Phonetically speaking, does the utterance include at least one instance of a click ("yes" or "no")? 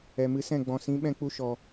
no